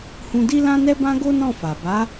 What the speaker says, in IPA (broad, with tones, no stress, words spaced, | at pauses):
hũ˧di˦lã˦ nɛ˦bã˦ ɡo˦nɔ̃˦˨fa˨ ba˨˦